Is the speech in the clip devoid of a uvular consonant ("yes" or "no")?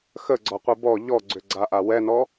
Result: no